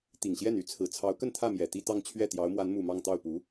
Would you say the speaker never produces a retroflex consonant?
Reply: yes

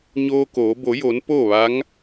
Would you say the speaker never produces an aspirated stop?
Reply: yes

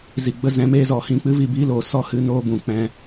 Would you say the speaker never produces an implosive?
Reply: yes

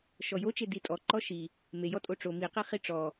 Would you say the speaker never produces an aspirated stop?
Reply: yes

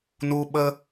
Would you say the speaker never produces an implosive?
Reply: no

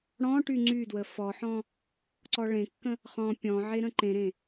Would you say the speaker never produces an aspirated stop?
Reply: yes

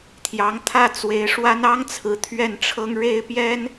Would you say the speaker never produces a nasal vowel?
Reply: yes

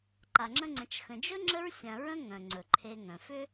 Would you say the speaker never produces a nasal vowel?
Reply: no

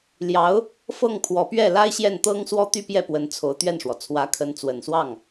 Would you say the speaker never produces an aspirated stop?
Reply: no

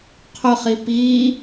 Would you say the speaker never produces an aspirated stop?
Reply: no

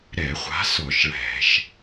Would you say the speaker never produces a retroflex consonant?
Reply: no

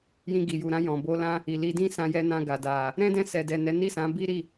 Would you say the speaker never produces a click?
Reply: yes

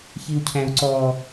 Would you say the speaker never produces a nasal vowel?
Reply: no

